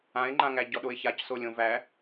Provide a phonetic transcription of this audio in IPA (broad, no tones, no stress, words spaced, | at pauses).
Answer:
ãɪ̯ŋ͡ǃãŋæ ɟɔɗoɪ̯çacso lʲõvæ